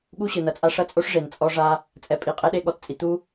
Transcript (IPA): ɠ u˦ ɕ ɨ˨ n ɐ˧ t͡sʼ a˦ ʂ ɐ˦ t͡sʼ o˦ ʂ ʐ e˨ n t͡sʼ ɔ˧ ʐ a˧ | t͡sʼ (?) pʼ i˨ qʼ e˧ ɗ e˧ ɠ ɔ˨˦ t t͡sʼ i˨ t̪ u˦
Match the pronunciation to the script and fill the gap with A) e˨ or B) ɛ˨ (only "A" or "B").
B